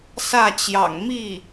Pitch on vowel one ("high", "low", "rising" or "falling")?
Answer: falling